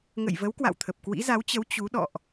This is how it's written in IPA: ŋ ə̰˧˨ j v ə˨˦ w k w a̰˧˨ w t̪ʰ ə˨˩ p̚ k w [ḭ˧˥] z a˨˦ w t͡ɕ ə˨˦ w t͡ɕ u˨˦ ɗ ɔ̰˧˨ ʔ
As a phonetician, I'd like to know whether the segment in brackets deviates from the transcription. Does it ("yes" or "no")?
no